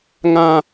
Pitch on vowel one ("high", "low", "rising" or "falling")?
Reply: high